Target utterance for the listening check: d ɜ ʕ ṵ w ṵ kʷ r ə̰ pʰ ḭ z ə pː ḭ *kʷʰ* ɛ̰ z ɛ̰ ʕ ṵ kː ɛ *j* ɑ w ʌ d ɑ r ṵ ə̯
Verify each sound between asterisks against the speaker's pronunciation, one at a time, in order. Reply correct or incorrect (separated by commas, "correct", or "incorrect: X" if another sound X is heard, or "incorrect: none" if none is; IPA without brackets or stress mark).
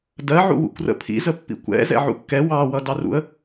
incorrect: kʷ, incorrect: w